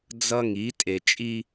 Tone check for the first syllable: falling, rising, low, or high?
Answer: high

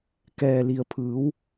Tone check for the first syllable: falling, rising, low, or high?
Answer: low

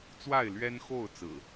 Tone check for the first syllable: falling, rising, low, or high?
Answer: falling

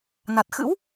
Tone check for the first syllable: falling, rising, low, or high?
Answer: low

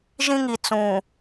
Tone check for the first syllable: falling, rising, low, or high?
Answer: high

